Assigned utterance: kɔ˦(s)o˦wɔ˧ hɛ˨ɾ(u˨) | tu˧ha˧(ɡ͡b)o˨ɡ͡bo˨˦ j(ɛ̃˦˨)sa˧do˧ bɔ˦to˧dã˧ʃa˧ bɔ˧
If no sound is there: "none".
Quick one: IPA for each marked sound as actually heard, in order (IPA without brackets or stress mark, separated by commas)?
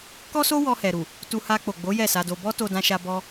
s, u˨, k͡p, ɛ˦˨